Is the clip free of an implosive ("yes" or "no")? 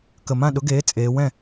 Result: no